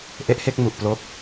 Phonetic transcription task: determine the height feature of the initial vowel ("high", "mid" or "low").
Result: mid